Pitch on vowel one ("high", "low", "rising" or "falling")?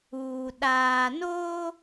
low